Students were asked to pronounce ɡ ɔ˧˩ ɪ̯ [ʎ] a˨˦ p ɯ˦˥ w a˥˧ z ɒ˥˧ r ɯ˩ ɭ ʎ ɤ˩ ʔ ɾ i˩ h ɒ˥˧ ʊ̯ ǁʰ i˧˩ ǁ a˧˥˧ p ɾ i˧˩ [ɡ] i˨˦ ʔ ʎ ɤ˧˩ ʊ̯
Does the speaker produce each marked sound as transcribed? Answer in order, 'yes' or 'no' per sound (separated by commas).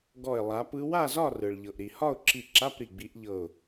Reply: no, no